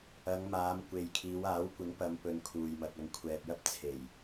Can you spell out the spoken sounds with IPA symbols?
ɐ˨˧ ŋ m aː˨˧ m kʷ e˨ j kʰ iː˨˧ w aː˨˥ w kʷ ɪ˨˥ ŋ p ɐ˨˧ m p ɵ˨˧ n kʰ uː˨ j m ɐ˨ k̚ ɐ˨˧ ŋ kʷʰ ɛː˨ p̚ j ɐ˥ p̚ t͡sʰ e˨˩ j

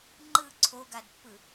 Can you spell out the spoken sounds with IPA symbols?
ŋ͡ǃ ɯ ǀʰ o ɡ a d pː ɯ

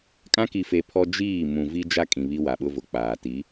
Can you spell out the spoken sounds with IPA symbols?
kʼ ã˦ k i˨ f e˨ pʰ ɔ˦ d͡ʒ iː˦˨ m ũ˨ v i˦ d͡ʒ a˦ kʼ ĩ˨ β i˦ w a˨ ɓ ʊ˦ v ʊ˨ k͡p aː˨ t i˨˦

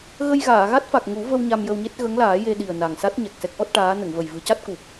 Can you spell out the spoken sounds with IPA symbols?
ɣ ə˧ j ɣ aː˨˩˨ ɣ a˦˥ t̚ f a˨˩ k̚ ŋ u˨˩˦ v ə˧ w ɲ a˧ m j ə˧ w ɲ e˦˥ t̚ ɣ ə˧˥ ŋ l aː˨˩˦ j e˧ ɗ i˨˩ ə̯ n a˨˩ ŋ s a˦˥ t̚ ɲ ɛ˨˩ k̚ s ɛ˦˥ k̚ ʔ ɔ˦˥ t̚ ʈ aː˧˥ n ə˨˩˨ ŋ v ə˨˩ j v ɨ˨˩˦ c a˦˥ t̚ k u˨˩ p̚

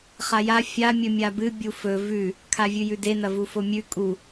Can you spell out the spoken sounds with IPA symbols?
χ a j a fʲ a mʲ ɵ mʲ a b ɨ bʲ u f ɵ v ʉ | kʰ a vʲ ʉ j ʉ d e n ɐ v u f o mʲ ʉ kʼ u

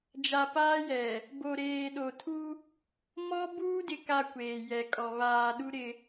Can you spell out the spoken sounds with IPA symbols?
d͡ʒ a˨ p aː˦ j ɛ˨ | b o˨ ɾ eː˨ ɗ o˨ tʰ u˦ | m ɔ˦ b uː˦ d ɪ˨ k a˨ kʷ eː˨ j ɛ˨ kʼ ɔ˨ β aː˨ ɗ u˦ ɾ ɪ˦

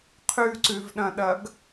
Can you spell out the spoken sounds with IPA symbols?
qʰ ʉ ǀ ʉ v ɗ ɐ̃ ɗ ɐ ɡ

